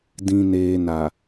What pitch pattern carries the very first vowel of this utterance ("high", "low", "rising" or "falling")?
low